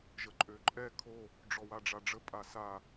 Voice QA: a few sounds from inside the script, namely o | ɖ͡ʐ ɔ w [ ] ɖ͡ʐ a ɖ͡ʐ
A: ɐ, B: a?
B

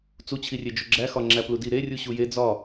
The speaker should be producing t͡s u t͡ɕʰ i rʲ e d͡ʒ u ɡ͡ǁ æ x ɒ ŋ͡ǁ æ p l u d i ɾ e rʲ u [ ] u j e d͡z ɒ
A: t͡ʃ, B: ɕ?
B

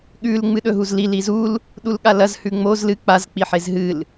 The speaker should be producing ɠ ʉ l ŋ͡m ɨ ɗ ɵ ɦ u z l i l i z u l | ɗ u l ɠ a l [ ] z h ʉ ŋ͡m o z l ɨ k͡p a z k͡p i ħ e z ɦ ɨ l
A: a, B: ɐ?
B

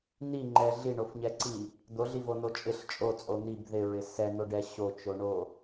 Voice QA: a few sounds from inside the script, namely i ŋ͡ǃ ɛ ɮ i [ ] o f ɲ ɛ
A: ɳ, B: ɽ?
A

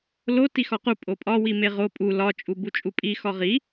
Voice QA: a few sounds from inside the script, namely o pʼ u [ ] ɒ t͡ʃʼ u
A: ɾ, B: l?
B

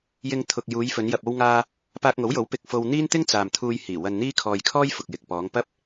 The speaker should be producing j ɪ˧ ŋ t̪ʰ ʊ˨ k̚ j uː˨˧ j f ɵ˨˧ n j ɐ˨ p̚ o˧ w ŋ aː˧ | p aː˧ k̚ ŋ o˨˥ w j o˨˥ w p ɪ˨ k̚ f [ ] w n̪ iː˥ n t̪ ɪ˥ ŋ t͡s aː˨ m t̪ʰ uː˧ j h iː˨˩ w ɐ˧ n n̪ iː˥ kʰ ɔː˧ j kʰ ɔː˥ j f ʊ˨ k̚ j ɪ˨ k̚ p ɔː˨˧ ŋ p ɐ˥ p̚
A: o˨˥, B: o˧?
B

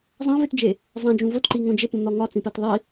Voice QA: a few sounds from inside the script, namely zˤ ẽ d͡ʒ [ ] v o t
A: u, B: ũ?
B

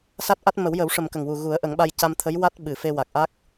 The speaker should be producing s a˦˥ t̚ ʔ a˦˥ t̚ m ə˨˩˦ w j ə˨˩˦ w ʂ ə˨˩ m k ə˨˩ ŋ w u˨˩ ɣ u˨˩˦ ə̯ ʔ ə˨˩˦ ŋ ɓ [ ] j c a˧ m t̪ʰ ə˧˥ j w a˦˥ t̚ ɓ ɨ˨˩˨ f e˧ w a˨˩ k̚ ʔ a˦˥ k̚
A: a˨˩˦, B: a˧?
B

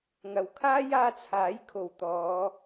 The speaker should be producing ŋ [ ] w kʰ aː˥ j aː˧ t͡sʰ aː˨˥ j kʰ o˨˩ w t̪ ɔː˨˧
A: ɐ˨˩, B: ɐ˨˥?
A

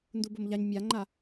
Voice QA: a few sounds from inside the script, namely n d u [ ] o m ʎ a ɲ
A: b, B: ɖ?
A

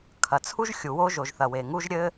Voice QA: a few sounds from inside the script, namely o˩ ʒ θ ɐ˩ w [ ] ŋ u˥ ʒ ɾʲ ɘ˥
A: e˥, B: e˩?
B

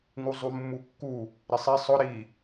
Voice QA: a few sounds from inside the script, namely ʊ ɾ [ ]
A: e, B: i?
B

